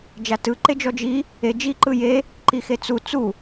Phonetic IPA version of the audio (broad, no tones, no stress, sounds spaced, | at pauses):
d͡ʒ a t ɯ ǃ e d͡ʒ ɔ d͡ʒ i | e d͡ʒ i ǃ ɯ j e | ǃ i x e t͡s u t͡s u